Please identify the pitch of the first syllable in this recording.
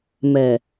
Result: low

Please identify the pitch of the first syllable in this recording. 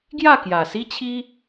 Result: falling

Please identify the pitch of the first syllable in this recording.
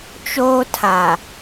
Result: high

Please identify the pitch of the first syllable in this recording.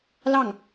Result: falling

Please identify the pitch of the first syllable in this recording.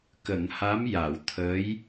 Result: low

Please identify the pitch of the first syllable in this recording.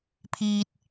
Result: high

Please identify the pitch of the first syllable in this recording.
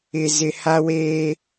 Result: low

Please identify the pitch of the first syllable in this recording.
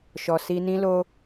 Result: low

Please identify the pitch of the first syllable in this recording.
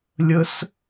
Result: high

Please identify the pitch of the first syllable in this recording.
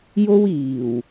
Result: high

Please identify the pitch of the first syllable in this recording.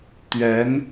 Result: rising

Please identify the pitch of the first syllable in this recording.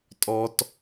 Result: high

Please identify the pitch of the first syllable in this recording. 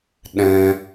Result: high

